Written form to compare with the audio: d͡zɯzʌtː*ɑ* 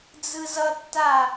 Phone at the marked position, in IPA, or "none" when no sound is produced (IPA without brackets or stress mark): a